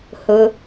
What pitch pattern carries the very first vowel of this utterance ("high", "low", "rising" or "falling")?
low